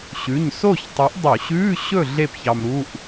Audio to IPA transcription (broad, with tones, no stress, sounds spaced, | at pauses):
ɕ ʉ˩˧˩ ɲ s o˥˨ ç tˤ y˨˥ ʔ dˤ u˧˩˧ ɕ ʉː˧˥˧ ɕ ɵ˥˨ ɮ e˥˨ p ç ɑ˧ m ɾ u˧˥˧ ʔ